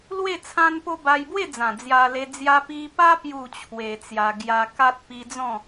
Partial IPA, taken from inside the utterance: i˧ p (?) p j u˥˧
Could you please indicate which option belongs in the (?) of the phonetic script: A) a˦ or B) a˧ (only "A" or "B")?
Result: A